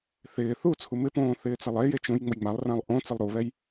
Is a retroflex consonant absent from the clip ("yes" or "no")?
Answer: yes